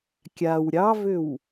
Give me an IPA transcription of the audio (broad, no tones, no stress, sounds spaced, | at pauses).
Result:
kʲ a w ɾʲ ɑ v ʏ w